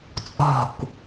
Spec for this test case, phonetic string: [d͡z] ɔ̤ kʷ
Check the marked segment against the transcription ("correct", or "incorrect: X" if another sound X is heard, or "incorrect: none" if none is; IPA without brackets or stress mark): incorrect: t͡sʼ